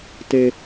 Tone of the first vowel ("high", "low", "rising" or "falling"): high